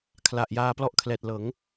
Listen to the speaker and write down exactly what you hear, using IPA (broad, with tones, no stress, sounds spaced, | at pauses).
kʰ l a˨˩ ʔ j aː˧ p l ɔ˦˥ ʔ kʰ l ɛː˨˩ t̚ l ɤː˩˦ ŋ